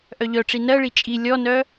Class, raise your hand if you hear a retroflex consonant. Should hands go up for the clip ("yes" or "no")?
yes